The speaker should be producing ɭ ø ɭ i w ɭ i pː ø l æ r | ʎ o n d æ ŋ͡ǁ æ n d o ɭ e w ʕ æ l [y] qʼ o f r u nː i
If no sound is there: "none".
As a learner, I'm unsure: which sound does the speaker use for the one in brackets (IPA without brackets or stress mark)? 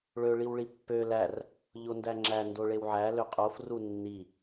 ø